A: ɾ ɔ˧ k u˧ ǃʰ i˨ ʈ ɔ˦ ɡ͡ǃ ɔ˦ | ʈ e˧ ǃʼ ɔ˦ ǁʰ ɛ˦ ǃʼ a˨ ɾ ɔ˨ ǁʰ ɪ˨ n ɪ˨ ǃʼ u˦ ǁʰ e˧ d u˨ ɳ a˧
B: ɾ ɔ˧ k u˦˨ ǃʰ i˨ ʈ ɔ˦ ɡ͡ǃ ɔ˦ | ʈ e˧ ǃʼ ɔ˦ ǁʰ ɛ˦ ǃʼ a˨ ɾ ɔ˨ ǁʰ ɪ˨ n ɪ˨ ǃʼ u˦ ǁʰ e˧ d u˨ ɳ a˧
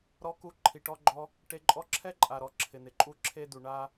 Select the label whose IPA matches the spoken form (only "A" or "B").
A